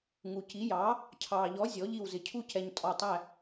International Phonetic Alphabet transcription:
ŋ u˨ c i˨˥ j ɑː˨˥ | cʰ ɑː˨ ʎ ɔ˨˥ zʲ ɔ˨˥ ʎ i˦˨ w z ɪ˨ cʰ u˦˨ c ɛ˨ ɲ tʼ ɔ˨ tˤ æ˦˨

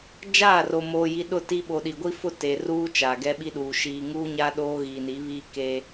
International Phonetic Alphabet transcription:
d͡ʒ aː˦˨ r o˨ m oː˨ j i˨ ɗ ʊ˦˨ t iː˦ ɓ o˨ ɗ i˨ ɡʷ i˦ f ʊ˦ t e˨ r uː˦ t͡ʃ aː˨ ɡ ɛ˦ ɓ i˦ ɗ uː˨ ʃ iː˨ ŋ uː˦ ɲ a˦ ɗ oː˦ ɣ iː˨ n i˨˦ β iː˦ k e˦

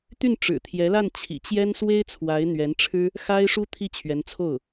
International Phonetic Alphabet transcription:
t̪ y˥˩ n ʈ͡ʂ ɻ̩˨˩ t̪ʰ j ɛ˧˥ l a˥˩ n t͡ɕʰ ḭ˨˩ t͡ɕ j ɛ˥ n s w e˥ ɪ̯ t͡sʰ w a˧˥ ɪ̯ n̪ ɥ ɛ˧˥ n ʈ͡ʂʰ ɻ̩˥ | x a˥ ɪ̯ ʂ u˥ t̪ʰ i˥˩ t͡ɕʰ ɥ ɛ˧˥ n t͡sʰ o˥˩ ʊ̯

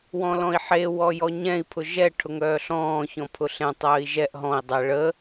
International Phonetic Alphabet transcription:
w ɔ̃ l ɔ̃ i̯ ħ e w ɔ j ɔ ɲ ɛ̃ i̯ pʰ ʊ ʒ ɛ ʈʰ ʊ ŋ œː ɬ ɔ̃ː ç ɔ̃ pʰ ʊ ɬ ɛ̃ tˤ œː i̯ ʒ ɛ ʔ ɦ ɔ̃ i̯ dˤ ɛ ɭ ə

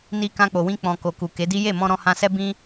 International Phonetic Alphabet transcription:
n i˧ k ã˧ k͡p o˨ w ĩ˧ k͡p ɔ̃˨ k o˨ k u˨ k e˨˦ d i˦ j e˦˨ m ɔ̃˧ ɾ ɔ̃˧ h ã˧ s ɛ˦ b ĩ˦

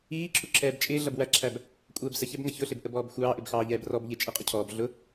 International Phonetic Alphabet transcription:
iː ǁʰ u ǁʰ ɛː b t͡ʃʼ ɪː ɮ ʌ b w æ ǁʰ æ b | kʷʼ ɛː b s ə ç ɛ b ŋ ʌ ç ʊ ɬ ɪ b ʔ ə b ɔː b xʷ ɑː ʔ ɪ b x ɑː ʎ ɛː b r ɔ b ʎ ɪ t͡ʃʼ i qʼ ʊ cʰ ɔː b ɮ ʊ

